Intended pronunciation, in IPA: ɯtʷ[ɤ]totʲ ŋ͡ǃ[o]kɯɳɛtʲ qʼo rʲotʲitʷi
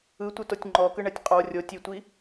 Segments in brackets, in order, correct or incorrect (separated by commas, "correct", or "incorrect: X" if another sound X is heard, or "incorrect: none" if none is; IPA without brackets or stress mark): incorrect: ɯ, incorrect: ɔ